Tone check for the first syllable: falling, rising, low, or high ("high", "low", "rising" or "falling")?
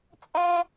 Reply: high